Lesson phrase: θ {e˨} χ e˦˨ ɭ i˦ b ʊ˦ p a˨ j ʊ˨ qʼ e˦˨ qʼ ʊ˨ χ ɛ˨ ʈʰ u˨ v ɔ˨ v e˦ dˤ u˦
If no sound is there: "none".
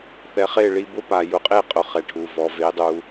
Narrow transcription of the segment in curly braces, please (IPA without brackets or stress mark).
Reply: ɛ˨